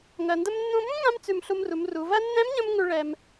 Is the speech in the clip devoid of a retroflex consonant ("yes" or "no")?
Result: no